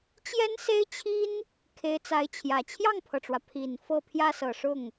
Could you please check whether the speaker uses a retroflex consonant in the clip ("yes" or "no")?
yes